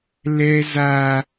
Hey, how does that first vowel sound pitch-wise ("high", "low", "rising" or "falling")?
high